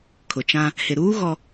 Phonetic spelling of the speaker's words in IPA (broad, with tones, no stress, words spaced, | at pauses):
kʰʊ˨t͡ʃã˦ | hɪ˨ɾuː˦ ɣɔ˦